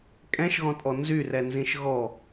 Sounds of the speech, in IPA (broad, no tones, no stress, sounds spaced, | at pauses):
kʼ ɛ̃ ʃ ɣ ɔ̃ tʼ ɔ n z y r ɛ n z ĩ ʃ ɣ ɔ